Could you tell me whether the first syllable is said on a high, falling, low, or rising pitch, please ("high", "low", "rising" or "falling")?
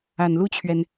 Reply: low